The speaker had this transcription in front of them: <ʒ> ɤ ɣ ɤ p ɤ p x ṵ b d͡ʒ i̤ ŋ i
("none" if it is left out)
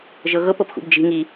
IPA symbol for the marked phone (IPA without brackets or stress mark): ʒ